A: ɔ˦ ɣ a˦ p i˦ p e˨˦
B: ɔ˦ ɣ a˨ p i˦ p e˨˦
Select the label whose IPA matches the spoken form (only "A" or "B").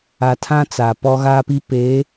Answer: A